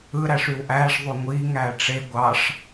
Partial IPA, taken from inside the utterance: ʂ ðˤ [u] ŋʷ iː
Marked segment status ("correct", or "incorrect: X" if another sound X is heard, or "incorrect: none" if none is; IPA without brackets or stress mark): correct